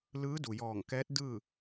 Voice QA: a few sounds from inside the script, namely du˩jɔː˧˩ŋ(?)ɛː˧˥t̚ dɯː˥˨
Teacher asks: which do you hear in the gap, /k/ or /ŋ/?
k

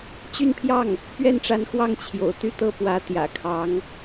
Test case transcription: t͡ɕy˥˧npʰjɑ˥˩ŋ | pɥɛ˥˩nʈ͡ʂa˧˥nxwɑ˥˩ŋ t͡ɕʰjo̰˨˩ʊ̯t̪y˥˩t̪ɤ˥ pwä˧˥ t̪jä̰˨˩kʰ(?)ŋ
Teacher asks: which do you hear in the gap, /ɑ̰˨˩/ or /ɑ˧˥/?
ɑ˧˥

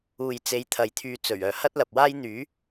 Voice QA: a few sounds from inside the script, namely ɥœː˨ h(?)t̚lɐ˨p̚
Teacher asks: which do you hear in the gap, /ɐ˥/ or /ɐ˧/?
ɐ˥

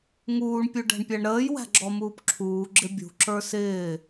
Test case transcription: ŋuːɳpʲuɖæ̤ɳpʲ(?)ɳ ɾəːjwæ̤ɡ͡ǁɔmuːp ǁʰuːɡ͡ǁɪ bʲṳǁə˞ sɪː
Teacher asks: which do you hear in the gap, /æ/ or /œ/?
æ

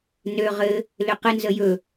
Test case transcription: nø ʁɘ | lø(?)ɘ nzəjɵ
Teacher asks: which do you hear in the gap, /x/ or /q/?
q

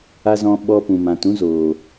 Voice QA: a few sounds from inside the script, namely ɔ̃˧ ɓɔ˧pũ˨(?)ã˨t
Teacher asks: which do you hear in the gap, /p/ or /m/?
m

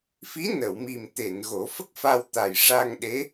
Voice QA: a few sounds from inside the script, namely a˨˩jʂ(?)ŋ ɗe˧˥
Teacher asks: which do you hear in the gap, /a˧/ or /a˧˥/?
a˧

